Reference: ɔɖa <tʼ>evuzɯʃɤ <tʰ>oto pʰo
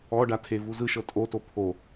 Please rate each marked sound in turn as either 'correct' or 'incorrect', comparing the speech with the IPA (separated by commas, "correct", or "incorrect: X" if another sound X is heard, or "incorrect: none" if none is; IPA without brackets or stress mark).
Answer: incorrect: tʰ, incorrect: tʼ